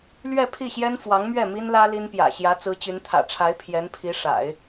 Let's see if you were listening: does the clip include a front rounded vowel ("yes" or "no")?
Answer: yes